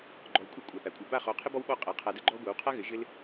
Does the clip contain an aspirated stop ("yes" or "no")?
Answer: yes